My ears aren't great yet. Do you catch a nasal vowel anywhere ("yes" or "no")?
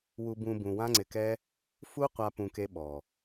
yes